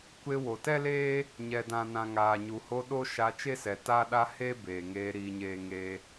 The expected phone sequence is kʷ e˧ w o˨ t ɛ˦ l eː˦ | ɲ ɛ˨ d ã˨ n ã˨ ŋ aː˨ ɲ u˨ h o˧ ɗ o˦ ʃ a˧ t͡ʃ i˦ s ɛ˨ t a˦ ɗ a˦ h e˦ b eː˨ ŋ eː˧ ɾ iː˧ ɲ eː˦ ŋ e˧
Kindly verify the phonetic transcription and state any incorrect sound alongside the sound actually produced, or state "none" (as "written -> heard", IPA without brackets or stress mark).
i˦ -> e˦